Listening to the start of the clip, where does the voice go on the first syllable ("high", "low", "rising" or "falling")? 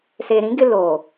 low